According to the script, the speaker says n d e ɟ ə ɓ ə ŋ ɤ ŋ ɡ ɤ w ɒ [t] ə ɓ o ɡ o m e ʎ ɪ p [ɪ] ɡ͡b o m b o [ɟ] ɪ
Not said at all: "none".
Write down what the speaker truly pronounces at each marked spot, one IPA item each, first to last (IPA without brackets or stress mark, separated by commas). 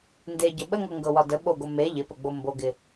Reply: d, ə, ɡ